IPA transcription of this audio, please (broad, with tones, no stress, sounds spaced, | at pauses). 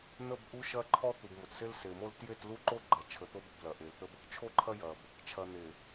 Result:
n̪ ə˦˨ b ʔ u˦ ʃ ɐ˦ ǃʰ ɔ˦ t̪ u˨ b m o˨ t s e˦ l s e˨ m o˦ l t j e˦˨ t l u˦ ǃ o˦ ɡ͡ǃ ɐ˨ t͡ʃʰ ə˨ t̪ o˦ b ə˨ b l ɐ˨ ʔ e˨ l t̪ ə˦ b | t͡ʃʰ o˦ ǃʰ ɐ˦ j ɐ˨ b | t͡ʃʰ ɐ˨ n̪ e˨